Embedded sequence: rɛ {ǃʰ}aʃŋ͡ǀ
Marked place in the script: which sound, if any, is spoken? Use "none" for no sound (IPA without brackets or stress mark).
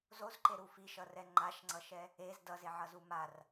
ŋ͡ǃ